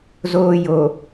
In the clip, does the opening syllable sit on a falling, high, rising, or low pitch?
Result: low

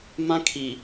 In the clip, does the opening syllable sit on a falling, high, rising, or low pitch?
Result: high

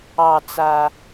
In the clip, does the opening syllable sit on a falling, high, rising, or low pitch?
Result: low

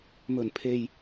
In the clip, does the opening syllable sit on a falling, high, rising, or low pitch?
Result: low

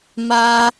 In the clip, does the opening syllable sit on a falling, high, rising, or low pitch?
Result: high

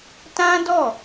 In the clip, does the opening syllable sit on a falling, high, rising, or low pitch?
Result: high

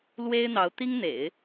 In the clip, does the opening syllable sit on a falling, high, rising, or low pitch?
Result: high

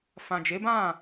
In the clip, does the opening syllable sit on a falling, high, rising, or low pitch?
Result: low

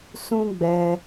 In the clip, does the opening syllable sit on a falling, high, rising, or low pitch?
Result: high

